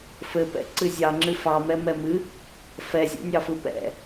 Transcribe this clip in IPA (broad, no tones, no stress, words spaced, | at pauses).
fɘpɛ̰ ǀɨzʲɑŋ͡ǁɨ fɑmɛ mɛmɨ | fɛzʲɔ̰nʲɑfɯ pɛ̰